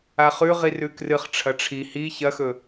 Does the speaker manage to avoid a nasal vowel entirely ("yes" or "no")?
yes